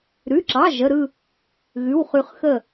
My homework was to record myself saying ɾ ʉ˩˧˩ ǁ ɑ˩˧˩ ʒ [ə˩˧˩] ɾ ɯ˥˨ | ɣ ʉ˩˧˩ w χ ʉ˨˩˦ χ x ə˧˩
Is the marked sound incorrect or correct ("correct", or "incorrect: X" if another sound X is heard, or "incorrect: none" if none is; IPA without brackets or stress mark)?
correct